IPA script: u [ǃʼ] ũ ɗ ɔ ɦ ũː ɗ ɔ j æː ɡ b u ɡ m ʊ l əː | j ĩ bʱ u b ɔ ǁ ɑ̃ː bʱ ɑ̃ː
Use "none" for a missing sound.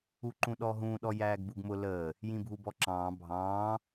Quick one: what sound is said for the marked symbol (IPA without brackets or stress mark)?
ǃ